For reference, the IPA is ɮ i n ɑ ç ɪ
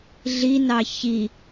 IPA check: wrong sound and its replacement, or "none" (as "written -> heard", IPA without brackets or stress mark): ɪ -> i